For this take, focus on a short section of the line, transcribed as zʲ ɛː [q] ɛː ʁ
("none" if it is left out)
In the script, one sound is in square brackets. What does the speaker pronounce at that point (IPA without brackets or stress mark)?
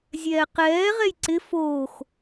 q